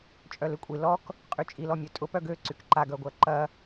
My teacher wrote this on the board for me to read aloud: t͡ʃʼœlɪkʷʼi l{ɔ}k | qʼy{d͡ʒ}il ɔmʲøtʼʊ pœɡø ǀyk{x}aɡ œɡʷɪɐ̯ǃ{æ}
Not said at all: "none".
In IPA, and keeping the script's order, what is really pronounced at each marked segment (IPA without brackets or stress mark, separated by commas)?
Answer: ɔ, t͡ʃʼ, ǃ, ɐ